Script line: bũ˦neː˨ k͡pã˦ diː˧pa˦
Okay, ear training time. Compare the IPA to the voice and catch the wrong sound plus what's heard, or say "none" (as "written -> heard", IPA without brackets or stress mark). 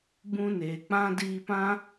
a˦ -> ã˦